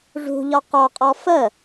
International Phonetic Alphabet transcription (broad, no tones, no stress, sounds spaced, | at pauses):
ʐ ṳ ʎ ɒ q ɒ qʼ ɔ f ə